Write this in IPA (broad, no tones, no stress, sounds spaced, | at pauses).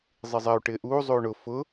zˤ i zˤ ɛ u̯ ʈ ɪː ʔ uː zˤ uː ɳ ʊ f ʊ